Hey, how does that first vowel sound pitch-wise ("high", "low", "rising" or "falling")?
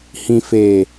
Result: low